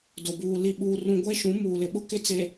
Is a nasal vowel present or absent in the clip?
present